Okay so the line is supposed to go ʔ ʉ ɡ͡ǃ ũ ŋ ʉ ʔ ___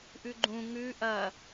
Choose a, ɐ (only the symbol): ɐ